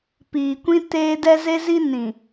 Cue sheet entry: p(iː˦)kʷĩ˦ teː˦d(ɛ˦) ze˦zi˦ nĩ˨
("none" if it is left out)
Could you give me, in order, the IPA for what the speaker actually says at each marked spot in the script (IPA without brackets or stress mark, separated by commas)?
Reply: iː˨, ɛ˦